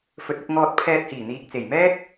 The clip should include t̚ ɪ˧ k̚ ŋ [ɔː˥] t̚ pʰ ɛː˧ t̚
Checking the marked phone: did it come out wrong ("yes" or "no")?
yes